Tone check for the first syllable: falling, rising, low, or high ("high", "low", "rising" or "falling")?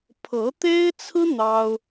rising